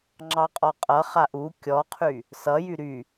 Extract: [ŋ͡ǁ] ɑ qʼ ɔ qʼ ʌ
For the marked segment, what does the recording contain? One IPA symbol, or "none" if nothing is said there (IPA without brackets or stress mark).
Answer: ŋ͡ǁ